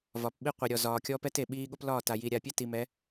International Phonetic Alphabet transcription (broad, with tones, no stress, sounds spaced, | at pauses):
v ɒ˨ p ɓ i˦ qʷ i˨ ɾʲ ɔ˨ z ɒː˨ kʲ ɔ˦ p ɛ˦ t e˨ ɓ iː˦ ɠ o˦ p l ɒː˦˨ t a˨ j i˨ ɾʲ a˨ pʲ ɛ˦ t i˨ m ɛ˨˦